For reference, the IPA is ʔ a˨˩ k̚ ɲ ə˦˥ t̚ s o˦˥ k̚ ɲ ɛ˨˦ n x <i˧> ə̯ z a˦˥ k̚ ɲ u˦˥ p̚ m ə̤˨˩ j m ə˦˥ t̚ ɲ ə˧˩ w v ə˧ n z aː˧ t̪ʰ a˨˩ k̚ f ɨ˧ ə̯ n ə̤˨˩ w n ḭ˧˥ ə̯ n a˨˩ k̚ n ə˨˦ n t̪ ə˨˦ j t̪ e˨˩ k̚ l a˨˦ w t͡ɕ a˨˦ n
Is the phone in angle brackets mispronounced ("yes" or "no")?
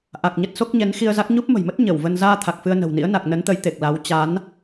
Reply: no